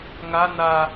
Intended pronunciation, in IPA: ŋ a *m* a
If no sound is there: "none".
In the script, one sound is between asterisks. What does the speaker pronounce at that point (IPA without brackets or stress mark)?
n